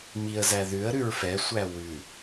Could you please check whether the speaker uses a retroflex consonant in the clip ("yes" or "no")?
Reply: no